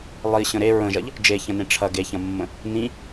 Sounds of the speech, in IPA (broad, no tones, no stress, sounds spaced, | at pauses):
lˠ i ɕ ə̃ ɾ e ɹ ə̃ ʒ ɐ ʎ | d͡ʒ e ç ɐ̃ n ẽ ʈ͡ʂʰ ɐ ɡ e ç ɐ̃ mː ə̃ | n ĩ